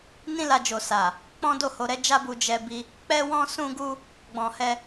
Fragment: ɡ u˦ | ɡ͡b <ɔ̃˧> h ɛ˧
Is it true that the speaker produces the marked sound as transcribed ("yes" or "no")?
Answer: no